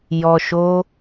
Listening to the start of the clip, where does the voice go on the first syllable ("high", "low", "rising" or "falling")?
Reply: low